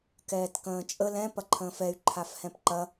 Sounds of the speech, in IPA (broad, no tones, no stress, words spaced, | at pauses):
kɛːtkə̃ːt͡ʃʼə lɛ̃ pɐǃʰə̃ːfɛy̯ ǃʰafhɛ̃pǃɐ